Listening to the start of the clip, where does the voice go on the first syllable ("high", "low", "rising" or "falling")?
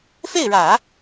falling